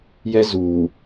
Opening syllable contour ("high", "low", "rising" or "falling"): high